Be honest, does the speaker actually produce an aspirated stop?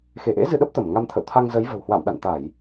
yes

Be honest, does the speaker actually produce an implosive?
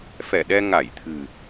yes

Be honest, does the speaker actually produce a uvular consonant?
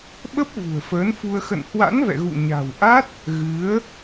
no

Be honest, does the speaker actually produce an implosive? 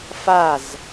no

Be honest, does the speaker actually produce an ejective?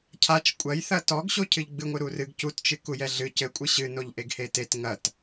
yes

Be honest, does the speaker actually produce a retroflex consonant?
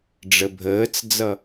yes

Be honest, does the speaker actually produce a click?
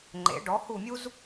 yes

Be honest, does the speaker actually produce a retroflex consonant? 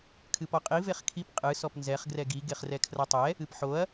no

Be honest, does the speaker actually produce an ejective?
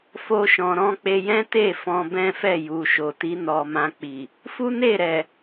no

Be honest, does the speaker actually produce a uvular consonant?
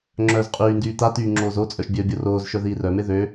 yes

